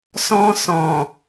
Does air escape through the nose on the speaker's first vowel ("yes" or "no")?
yes